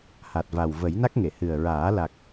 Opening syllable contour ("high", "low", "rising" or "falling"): low